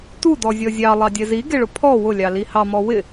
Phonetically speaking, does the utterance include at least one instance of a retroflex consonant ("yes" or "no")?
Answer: yes